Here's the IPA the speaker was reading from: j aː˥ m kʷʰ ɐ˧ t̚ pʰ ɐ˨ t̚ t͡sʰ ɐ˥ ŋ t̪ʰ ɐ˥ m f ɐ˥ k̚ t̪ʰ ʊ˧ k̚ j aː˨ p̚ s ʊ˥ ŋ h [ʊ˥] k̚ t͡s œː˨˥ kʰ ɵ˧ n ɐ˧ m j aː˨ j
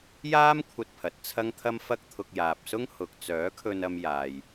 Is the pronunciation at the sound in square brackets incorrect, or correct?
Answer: incorrect